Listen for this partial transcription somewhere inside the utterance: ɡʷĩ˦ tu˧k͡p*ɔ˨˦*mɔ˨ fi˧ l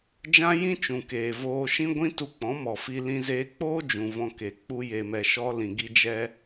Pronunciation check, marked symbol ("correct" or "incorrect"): incorrect